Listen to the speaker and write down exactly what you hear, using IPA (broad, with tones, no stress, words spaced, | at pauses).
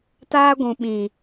taː˦ɡʷũ˨ ɓĩ˨